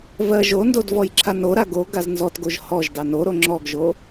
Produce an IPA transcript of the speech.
v ɜ ʒ o n d o d v ɔ j ǁʰ a n o ɾ a ɡ o ɡ a z n z ɔ t ɡ o ʒ h ɔ ʒ d ɑ n o ɾ o ŋ͡ǁ ɔ ɡ ʒ o

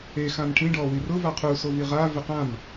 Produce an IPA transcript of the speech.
e x ã m ʈʰ ĩ ɖ ɔ w i r ʊ v a qʰ u s o v i ʁ a v ɪ q ã m

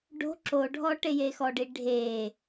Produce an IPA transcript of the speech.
ɖ o̤ ǁ o ɖʱ ɔ ʈ e j e x ɔ ɖ i ɖʱ e

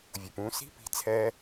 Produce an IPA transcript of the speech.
vʲ u˨ p ũː˧ s i̤˦ p i̤˧ t͡sʰ ɛː˦

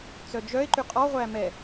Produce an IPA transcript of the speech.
t͡s œ d͡ʒ œ e̯ ǃ y qʼ ɔ ʁʷ æ m ɛ

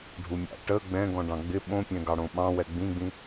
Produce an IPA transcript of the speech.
ɖʱ u mʲ ɑ̰ ʈ ə ɡ͡b ɛ̃ ɡ ɔ̃ ɖ ɑ̃ ɡ͡b ɪ ɓ õ pʲ ɛ̃ ɡ ɑ ɽ õ ɓ ɑ̃ w ɛ ɡ͡b ĩ ɡ͡b ĩ

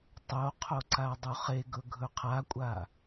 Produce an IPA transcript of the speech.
tˤ o qʰ o ǀ a dˤ u χ e ɡ ɵ ɡʱ ɵ qʰ a kʷʼ a

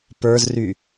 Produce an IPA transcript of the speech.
p ə˞ z r y

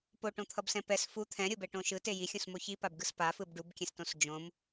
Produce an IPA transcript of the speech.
p o ʈ õ t̪ʰ ʌ b s ɛ̃ p ɛ s f u t̪ʰ ɛ̃ ɾʲ o b ɛ ʈ õ ʃ ɯ t e j i xʲ õ s m o ç i p a b ɡ ɯ s p a f ɯ b ɖ u b kʲ ɛ̃ s t õ s d͡ʒ õ m

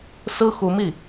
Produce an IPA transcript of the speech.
s ɹ̩˥ x u˧˥ m i˥˩

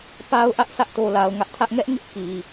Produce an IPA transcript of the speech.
p a˦ ʊ̯ ʔ ä˦ ʔ sʰ ä˦ ʔ t o˨ l a˨ ʊ̯ ŋ ä˦ ʔ tʰ ä˦ ʔ ŋ ɛ˦ ʔ ŋ ɪ˦ ʔ k i˨

